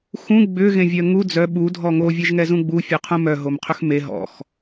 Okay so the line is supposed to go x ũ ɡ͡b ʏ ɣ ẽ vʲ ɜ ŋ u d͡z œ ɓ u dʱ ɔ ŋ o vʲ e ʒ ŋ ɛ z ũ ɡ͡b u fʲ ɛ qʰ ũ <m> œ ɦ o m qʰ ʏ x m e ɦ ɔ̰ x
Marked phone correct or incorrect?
correct